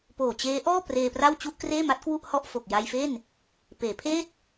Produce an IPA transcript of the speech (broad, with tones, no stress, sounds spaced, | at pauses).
p oː˨˩ t͡ɕ eː˦˥ ʔ ɔː˥˩ p r eː˧ p r a˥˩ w t͡ɕ u˥˩ ʔ k r eː˥˩ m a˦˥ t̚ k w u˥˩ ʔ h ɔ˥˩ ʔ f o˨˩ k̚ j a˧ j f e˥˩ n | p eː˩˦ pʰ eː˥˩ t̚